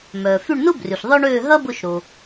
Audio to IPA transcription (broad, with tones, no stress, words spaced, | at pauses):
mœː˩ fy˦˨ɳnʊ˥ bry˩ɬðˤœ˥ ɳøː˦˨ɦɐ˥bʊ˦˨ʃ ɾo˩